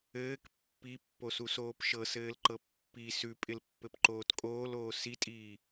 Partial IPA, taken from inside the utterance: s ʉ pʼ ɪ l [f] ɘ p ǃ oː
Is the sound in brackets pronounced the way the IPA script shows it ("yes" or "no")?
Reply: no